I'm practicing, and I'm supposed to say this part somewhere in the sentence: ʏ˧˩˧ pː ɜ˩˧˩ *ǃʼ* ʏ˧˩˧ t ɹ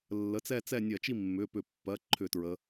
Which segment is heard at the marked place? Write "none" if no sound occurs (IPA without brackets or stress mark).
ǃʰ